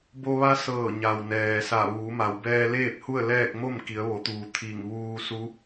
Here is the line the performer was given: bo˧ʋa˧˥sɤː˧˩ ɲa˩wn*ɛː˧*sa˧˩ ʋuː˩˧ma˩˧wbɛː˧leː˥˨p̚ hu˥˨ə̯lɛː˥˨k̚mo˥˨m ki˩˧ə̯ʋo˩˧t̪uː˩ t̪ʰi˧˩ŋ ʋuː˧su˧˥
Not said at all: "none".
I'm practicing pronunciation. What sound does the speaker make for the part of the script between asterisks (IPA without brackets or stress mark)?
ɛː˩